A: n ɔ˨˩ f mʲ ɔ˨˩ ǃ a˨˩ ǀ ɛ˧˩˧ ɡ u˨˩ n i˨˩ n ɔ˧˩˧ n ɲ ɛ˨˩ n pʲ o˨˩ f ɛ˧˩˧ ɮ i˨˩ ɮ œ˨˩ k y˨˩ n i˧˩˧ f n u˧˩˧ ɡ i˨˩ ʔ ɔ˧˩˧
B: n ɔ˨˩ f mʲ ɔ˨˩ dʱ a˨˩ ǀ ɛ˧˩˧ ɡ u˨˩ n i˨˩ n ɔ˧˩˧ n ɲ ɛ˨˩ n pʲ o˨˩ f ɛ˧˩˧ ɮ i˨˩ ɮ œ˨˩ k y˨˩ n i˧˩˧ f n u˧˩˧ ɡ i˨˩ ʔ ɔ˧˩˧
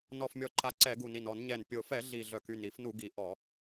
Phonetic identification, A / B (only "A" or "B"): A